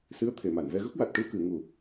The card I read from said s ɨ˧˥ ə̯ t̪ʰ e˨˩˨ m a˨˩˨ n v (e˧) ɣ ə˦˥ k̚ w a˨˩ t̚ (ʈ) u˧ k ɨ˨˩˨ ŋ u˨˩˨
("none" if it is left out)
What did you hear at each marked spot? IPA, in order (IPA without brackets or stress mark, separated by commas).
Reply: ɛ˧, ʈ